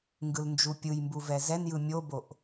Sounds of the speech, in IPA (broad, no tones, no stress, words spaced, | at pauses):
ŋɡɯlnd͡ʒupʲɯjmbu vɛzɛnjɯ mʲoboʔ